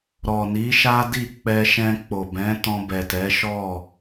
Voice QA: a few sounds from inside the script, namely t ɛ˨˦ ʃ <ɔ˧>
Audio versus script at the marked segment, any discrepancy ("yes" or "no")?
yes